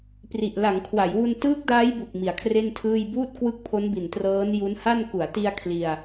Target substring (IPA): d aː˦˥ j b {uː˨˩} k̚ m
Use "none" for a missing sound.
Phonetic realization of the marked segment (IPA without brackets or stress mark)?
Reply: u˨˩